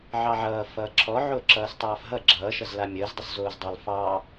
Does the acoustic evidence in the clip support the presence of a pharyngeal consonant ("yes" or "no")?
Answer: yes